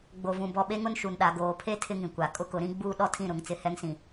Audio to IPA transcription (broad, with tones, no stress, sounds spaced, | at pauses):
ɡ͡b o˨ v ũ˨ b ɔ˨ ɓ e˦ ŋ ʊ˦ n ʃ u˨ n ɗ a˨ ɡ oː˨ pʰ e˦ tʰ ɪ˦ ŋ ĩ˨ kʷ a˨ kʼ ʊ˦ k ʊ˨˦ ɾ ĩ˦ ɡ͡b uː˦ ɗ ɔ˦ tʰ ĩ˦˨ ɾ ʊ˨ ŋ t͡s ɪ˦˨ h ɛ˦ ŋ s ĩ˨